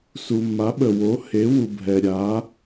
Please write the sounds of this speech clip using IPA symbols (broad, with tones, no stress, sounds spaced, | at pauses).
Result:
s u˩ mː a˩˥ ɓ ə˩ w o˩˥ h e˩˥ w u˩ bʱ ɛ˩ ɾʲ a˩˥